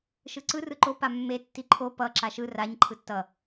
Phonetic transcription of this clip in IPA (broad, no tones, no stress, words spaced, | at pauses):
ʃɯǀɯ rɯǃo pamːe tːiǃʰo pʌ ǁaʃɯ raɲ ǃʰɯtːʌ